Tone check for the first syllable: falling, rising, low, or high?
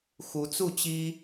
rising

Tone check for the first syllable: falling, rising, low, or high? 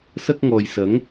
high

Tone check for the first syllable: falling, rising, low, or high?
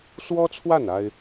high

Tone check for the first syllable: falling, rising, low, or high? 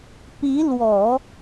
rising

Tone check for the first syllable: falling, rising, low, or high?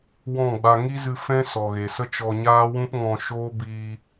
falling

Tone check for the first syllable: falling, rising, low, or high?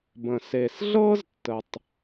low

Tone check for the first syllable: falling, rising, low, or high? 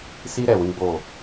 high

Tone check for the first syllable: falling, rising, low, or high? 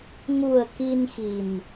low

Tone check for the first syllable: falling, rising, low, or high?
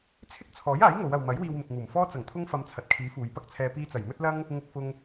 high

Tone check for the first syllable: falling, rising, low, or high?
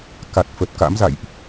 low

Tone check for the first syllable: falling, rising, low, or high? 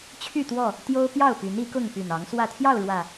falling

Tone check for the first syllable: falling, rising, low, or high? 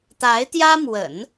rising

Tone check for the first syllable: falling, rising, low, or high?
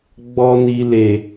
high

